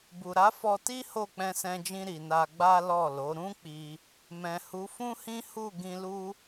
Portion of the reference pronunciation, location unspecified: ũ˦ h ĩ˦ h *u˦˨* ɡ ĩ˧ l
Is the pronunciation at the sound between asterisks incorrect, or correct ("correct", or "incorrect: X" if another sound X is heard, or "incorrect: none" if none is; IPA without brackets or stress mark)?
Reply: correct